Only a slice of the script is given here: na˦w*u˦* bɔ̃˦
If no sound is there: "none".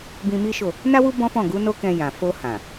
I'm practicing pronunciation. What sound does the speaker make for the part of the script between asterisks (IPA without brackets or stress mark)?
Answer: u˦